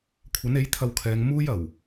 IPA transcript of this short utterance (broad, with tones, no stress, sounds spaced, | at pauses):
kʷʰ ɐ˨˥ n e˨˥ j t̪ʰ ɐ˧ w kʰ ɛː˨˧ ŋ m uː˥ j ɐ˨˩ w